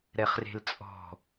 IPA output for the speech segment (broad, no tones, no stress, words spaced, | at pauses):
ɾɛχre̤lt͡sʼɔ̤